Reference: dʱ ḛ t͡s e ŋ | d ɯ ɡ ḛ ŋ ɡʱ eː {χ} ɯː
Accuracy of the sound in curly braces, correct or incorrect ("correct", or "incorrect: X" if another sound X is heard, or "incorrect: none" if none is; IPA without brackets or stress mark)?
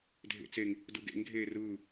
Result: incorrect: r